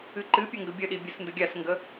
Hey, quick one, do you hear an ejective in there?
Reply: no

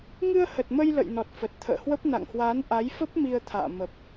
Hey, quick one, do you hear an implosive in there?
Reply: no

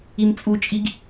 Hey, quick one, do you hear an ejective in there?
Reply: yes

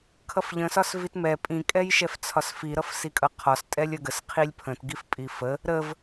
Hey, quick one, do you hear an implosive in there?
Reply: no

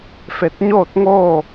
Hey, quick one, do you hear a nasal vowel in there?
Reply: no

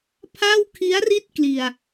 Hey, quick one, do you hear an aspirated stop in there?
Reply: yes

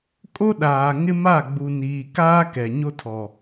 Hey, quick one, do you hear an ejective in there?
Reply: yes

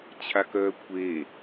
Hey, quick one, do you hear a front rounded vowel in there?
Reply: yes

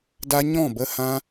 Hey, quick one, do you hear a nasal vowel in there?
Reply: yes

